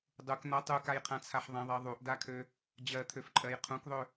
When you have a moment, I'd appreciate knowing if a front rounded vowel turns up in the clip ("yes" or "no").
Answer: yes